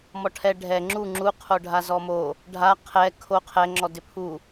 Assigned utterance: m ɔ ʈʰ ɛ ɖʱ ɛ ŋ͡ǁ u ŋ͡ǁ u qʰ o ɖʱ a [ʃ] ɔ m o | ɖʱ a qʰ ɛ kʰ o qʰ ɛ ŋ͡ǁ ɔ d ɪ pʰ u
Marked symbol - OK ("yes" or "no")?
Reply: no